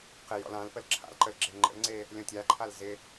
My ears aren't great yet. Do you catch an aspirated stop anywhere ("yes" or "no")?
yes